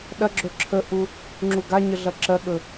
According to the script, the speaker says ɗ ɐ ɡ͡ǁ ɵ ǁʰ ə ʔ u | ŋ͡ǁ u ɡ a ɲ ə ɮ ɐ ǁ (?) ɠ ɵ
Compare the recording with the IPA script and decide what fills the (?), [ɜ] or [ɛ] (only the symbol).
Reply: ɜ